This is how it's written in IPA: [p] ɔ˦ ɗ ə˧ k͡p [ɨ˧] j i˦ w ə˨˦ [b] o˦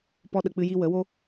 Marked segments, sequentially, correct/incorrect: correct, incorrect, incorrect

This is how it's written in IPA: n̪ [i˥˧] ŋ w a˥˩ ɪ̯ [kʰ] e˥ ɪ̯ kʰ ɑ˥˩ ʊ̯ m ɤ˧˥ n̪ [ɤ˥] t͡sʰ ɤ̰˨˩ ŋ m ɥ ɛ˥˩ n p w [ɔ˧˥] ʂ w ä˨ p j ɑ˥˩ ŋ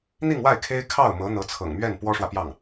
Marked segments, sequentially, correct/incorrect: correct, correct, incorrect, incorrect

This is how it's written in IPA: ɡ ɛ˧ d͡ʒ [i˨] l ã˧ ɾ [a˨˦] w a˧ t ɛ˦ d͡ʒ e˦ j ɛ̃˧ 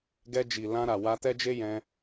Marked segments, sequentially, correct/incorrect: correct, incorrect

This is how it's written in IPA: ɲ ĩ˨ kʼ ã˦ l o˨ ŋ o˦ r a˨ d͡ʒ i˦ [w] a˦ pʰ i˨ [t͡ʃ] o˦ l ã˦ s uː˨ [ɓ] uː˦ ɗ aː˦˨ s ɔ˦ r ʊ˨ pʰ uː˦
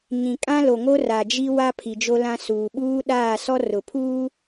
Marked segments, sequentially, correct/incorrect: correct, incorrect, correct

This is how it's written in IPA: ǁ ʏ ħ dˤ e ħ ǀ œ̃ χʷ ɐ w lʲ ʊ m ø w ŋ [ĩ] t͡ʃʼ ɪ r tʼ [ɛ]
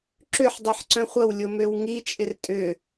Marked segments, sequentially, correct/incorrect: incorrect, incorrect

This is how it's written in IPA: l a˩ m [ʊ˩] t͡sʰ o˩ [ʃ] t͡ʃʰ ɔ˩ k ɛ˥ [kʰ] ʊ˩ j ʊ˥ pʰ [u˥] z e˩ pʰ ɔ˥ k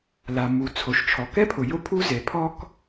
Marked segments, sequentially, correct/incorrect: incorrect, correct, incorrect, correct

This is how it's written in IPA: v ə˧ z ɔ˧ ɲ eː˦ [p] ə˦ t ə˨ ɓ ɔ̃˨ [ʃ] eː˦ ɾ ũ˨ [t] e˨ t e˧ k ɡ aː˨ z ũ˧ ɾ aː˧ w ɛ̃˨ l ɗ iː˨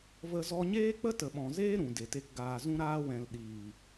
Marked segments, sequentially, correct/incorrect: incorrect, incorrect, incorrect

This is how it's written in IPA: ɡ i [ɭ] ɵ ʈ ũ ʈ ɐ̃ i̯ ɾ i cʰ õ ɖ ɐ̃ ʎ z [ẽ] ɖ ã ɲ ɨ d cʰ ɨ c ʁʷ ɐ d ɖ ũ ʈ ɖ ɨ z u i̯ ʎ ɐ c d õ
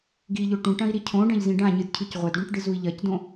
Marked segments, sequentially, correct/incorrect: incorrect, incorrect

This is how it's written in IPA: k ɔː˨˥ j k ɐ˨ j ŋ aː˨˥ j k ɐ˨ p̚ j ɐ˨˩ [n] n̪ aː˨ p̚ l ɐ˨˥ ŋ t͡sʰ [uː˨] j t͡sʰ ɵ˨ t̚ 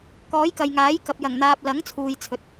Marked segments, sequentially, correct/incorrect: incorrect, correct

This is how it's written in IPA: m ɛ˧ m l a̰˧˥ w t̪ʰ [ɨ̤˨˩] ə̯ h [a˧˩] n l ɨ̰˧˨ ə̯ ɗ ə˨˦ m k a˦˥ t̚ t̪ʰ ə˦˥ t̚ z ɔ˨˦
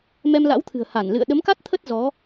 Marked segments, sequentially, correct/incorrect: correct, correct

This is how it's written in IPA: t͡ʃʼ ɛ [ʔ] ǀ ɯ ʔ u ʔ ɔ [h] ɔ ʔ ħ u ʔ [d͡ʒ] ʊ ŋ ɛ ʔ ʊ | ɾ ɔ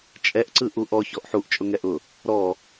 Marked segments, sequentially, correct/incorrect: correct, incorrect, incorrect

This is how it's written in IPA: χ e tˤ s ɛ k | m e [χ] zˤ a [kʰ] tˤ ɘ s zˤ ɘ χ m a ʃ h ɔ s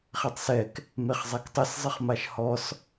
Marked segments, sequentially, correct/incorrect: correct, incorrect

